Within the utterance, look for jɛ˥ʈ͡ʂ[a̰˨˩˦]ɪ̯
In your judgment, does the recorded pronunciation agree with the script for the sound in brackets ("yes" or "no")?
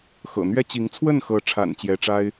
no